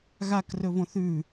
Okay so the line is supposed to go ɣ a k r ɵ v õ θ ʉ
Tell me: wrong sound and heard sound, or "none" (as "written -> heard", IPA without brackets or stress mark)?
none